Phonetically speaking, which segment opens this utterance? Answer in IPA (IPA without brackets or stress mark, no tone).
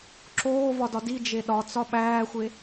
ǁ